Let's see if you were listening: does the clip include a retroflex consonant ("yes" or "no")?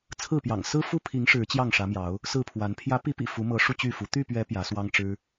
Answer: yes